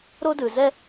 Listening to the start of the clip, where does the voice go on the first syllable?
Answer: high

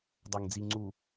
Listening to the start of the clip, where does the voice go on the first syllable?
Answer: low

